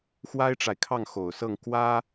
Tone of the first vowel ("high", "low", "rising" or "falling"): high